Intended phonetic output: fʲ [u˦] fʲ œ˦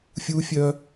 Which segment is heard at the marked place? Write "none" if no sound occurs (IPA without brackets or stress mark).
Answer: u˦